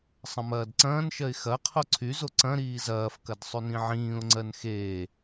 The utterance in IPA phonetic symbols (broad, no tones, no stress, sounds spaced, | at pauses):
sˤ ɐ̃ m ɐː d ǀ ɐ̃ː n ʃ ɜ ɪ̯ x ɐ qʰ o ǀʰ y z o ǀ ɐ̃ ɾ iː z ɐː f k ɐ d sˤ y n ĩ ʕ ĩː ʊ̯ ŋ͡ǀ ɜ n x eː